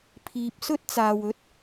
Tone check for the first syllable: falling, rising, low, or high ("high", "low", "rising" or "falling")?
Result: low